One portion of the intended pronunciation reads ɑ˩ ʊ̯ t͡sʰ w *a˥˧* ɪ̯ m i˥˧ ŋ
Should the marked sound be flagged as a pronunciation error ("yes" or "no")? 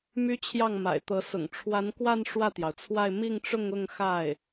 no